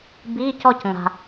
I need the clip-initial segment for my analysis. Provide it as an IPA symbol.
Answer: b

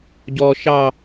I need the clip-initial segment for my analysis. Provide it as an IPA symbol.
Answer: ɟ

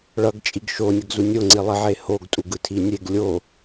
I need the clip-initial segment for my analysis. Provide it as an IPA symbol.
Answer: ɭ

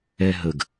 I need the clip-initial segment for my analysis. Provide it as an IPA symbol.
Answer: ɛ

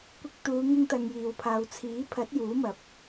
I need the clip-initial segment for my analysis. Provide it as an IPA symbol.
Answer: kʷ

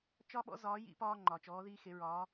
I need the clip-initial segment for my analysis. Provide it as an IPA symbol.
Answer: t͡ʃ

